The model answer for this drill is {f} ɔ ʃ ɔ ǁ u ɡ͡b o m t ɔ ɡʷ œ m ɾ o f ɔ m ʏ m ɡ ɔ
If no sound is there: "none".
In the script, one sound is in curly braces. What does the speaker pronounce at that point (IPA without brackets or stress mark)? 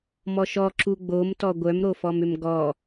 m